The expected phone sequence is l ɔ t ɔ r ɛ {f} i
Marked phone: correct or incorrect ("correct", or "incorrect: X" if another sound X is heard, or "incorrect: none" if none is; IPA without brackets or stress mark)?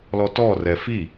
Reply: correct